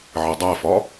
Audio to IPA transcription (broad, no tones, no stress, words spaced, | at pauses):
ʕɪdˤæfɒ